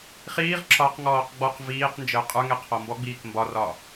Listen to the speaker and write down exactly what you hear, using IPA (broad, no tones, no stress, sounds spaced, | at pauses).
χ iː ʁ ǁ ɒ q ŋ ɔː q ɡ͡b ɔ q v iː q n d͡ʒ əː qʼ ə˞ ŋ ɛ qʰ ɔ m b ɔ ɡ͡b iː k m b ɒ r ɒː